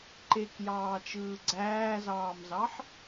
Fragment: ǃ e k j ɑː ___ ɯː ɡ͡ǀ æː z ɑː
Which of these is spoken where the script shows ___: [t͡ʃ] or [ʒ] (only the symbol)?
t͡ʃ